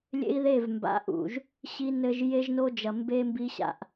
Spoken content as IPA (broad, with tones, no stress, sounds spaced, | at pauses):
lʲ ḛ˦ i̯ ð e˦˨ v m b a̰˨ ʔ ṵ˨ ʒ | ɕ i˦ n ɘ˦ ʒ j e˦ ʒ n o˦ d͡ʒ ɐ˨ m b e˦ m b i˦ ɕ a̰˨ ʔ